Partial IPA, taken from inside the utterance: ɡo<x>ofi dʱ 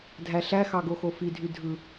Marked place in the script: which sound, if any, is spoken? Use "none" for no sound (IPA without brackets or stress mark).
x